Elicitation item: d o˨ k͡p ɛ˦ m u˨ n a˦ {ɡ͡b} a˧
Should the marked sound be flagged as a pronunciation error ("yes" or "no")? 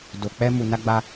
no